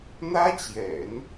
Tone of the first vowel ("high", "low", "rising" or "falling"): high